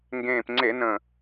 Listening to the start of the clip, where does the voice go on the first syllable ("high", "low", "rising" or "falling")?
low